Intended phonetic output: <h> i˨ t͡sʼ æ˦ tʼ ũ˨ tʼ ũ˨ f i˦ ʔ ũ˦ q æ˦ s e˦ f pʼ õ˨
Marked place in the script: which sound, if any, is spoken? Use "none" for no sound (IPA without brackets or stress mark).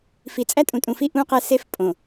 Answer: f